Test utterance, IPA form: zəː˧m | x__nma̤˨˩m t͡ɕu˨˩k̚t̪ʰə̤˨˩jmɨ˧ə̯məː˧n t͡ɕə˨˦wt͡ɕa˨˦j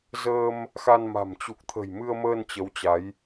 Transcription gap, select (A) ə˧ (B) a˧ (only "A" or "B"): B